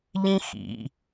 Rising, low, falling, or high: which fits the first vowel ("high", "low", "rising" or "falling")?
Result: high